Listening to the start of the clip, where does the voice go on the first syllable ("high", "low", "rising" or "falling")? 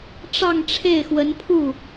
falling